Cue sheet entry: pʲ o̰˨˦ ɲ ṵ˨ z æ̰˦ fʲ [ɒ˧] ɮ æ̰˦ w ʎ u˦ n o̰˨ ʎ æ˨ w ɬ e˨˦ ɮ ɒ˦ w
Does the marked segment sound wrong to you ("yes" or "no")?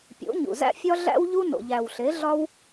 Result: yes